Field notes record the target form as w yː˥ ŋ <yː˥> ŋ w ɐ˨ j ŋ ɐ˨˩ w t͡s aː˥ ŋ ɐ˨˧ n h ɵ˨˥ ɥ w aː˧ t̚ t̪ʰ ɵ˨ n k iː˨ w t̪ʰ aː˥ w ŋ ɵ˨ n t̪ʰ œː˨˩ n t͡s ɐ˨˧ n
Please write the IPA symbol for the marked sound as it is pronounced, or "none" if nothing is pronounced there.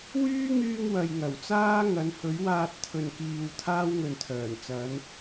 yː˧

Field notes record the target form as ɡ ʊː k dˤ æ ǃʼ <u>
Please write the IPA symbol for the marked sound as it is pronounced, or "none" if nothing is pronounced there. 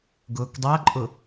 ʊ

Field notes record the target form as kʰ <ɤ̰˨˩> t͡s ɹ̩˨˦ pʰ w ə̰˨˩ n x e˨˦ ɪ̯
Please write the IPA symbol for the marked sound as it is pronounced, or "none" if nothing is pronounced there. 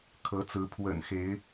ɤ˨˦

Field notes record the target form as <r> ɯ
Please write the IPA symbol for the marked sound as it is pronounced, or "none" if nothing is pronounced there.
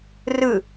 r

